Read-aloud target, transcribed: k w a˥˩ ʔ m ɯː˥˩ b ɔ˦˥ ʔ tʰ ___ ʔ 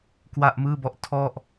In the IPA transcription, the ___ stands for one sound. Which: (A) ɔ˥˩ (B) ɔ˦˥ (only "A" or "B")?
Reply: A